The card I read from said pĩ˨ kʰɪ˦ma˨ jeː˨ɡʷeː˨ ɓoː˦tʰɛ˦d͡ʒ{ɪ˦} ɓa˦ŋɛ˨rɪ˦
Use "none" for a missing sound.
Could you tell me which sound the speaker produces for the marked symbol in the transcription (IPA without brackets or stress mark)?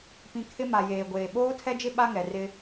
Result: ɪ˦